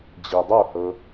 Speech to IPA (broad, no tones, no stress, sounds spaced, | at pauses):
d͡ʑ i dˤ o h ɤ